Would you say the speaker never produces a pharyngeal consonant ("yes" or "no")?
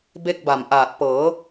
yes